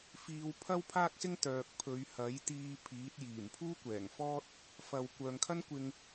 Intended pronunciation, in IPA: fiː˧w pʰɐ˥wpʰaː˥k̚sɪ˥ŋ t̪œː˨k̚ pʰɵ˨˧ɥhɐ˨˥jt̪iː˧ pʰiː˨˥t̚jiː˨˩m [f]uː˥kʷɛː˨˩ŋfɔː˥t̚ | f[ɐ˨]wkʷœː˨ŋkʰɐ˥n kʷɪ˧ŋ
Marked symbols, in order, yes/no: no, yes

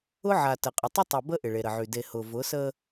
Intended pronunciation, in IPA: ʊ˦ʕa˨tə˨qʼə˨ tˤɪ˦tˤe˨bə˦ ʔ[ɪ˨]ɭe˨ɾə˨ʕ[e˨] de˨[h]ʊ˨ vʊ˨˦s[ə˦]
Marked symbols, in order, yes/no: yes, no, yes, yes

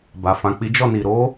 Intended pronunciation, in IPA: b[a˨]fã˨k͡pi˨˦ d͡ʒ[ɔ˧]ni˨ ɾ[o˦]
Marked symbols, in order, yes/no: yes, no, no

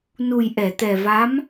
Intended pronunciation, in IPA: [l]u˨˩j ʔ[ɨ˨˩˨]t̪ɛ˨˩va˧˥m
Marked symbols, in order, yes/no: no, no

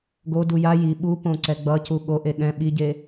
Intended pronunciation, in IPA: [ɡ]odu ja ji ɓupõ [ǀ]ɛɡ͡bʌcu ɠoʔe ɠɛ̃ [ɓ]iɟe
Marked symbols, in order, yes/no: yes, yes, yes

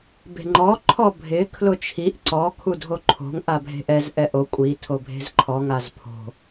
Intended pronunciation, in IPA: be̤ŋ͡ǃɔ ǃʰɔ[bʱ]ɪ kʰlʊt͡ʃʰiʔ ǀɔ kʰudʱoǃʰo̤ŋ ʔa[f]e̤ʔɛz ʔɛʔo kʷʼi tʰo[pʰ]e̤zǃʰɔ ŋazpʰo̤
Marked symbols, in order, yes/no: yes, no, no

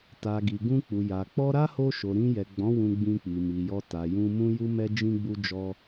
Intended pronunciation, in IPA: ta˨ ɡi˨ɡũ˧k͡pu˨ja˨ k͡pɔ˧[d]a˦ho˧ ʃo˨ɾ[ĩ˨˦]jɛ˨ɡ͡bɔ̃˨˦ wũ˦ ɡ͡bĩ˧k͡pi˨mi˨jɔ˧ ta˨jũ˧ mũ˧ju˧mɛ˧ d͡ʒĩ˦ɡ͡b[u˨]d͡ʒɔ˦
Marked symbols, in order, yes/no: no, no, no

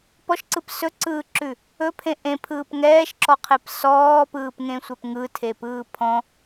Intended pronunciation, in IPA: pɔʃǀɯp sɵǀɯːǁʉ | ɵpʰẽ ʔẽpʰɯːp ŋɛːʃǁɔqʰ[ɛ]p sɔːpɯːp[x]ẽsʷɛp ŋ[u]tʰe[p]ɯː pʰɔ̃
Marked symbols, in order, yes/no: no, no, no, yes

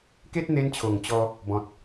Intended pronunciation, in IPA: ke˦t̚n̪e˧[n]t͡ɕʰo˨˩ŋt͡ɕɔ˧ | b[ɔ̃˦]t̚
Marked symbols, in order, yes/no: yes, no

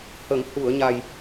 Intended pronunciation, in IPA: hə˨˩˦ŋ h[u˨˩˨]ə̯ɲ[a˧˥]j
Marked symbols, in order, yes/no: yes, no

